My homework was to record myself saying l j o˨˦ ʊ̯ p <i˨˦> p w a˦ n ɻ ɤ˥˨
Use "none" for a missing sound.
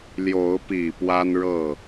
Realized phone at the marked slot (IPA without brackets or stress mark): i˨˩